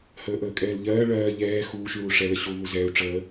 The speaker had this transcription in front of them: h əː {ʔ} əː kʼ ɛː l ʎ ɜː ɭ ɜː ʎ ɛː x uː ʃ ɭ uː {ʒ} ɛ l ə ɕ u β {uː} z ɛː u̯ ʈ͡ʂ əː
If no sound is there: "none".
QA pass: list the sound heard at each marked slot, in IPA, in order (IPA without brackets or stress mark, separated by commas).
ʔ, ʂ, u